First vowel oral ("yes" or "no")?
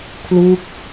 yes